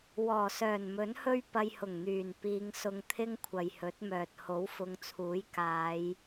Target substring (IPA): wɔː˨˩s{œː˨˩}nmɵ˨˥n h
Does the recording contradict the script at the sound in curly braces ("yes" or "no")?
no